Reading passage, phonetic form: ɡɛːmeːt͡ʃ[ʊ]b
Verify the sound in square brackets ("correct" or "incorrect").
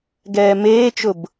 correct